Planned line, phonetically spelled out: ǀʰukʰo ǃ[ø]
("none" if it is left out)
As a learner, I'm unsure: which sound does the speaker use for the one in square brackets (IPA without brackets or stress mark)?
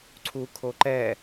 ɛ